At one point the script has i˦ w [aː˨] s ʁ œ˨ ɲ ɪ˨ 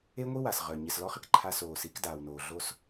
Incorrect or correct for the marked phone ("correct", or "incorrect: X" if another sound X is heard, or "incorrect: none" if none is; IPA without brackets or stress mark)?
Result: incorrect: a˨